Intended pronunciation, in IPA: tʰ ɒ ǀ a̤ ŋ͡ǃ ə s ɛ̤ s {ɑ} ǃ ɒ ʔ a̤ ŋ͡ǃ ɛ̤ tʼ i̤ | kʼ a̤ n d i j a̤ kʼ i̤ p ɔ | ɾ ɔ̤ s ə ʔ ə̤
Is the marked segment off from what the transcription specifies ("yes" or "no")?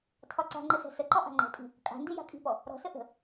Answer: yes